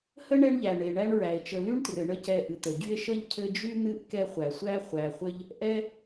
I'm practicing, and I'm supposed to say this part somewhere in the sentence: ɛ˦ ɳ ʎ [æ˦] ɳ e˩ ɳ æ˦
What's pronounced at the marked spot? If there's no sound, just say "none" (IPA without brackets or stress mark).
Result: æ˩